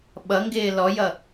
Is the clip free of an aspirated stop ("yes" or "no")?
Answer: yes